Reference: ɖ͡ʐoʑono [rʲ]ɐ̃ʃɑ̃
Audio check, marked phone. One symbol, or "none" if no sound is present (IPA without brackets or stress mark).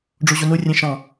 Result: rʲ